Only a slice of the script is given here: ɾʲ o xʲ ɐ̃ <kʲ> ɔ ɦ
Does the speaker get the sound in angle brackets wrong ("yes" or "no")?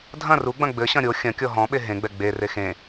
no